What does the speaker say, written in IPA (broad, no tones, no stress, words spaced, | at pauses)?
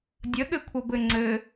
dʲəɠɘ kʷʰʌbɘŋ͡ǀɘ